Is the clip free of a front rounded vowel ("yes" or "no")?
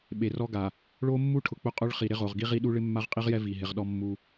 yes